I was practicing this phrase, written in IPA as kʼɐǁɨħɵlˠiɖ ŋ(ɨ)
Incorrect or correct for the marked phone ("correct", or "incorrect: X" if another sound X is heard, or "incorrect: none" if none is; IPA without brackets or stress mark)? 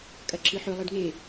incorrect: e